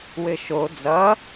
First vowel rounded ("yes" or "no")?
no